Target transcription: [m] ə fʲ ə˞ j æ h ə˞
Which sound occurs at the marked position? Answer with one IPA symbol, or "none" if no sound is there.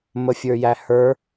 m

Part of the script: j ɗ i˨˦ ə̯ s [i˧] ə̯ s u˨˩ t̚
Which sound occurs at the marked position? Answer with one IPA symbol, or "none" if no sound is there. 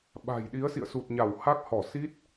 ḭ˧˨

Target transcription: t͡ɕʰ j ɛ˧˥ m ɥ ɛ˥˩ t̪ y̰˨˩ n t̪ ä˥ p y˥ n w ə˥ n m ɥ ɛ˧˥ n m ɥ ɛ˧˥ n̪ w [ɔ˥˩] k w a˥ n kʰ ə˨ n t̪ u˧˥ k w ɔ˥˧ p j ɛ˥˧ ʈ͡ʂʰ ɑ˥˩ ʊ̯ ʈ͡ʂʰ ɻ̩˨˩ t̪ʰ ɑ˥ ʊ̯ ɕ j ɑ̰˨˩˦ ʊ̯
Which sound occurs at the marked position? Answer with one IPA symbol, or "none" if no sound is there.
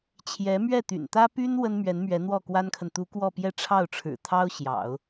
ɔ˥˩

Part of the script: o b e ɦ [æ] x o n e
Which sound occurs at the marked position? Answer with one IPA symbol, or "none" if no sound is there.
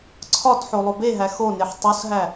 æ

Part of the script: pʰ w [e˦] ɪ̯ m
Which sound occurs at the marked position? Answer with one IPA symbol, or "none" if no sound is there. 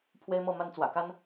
e˦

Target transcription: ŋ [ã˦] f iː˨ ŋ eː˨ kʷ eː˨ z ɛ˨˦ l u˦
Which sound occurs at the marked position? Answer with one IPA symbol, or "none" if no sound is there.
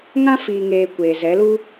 ã˦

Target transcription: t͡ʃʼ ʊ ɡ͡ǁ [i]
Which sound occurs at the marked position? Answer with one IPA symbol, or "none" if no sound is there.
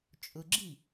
i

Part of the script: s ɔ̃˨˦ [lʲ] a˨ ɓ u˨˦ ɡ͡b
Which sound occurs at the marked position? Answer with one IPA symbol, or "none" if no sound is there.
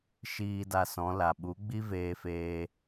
l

